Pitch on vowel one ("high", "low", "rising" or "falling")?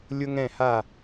high